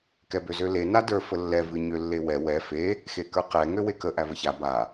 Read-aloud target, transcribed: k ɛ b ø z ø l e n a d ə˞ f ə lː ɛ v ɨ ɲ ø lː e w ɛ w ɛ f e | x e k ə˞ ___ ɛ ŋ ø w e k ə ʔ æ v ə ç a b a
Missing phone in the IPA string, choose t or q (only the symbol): q